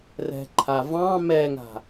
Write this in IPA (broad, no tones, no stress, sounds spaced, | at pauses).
r ɛ̤ ǃʰ a v ɑ̃ m ɛ ŋ a̤